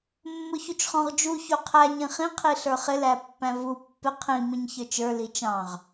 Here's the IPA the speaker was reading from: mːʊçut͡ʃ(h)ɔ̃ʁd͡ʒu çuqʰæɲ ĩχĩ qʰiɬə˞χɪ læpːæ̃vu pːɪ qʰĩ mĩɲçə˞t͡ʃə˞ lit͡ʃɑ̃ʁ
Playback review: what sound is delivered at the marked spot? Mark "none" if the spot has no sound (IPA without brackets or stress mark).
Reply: χ